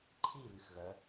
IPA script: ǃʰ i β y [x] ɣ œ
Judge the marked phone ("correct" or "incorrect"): correct